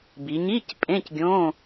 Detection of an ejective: present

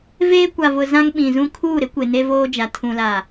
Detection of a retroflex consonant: absent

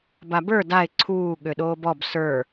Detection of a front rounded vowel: present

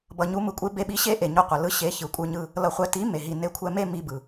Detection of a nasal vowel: absent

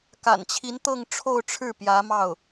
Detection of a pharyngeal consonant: absent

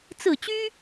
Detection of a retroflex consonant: absent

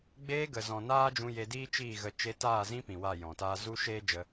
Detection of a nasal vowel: present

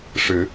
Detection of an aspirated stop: absent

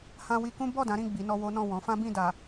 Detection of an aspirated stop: absent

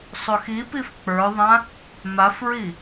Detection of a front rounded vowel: absent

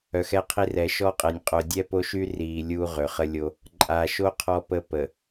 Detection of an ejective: present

